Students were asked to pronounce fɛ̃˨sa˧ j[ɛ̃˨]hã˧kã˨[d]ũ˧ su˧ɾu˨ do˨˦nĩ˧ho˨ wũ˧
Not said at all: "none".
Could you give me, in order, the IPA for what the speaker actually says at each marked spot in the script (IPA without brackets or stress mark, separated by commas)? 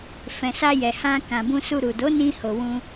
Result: ɛ˨, b